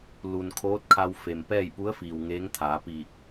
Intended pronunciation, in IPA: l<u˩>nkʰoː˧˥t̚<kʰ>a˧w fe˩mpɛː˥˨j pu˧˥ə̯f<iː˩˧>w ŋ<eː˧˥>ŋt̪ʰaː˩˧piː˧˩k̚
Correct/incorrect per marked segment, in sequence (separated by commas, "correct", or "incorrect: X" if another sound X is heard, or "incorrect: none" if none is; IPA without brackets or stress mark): correct, correct, incorrect: iː˩, correct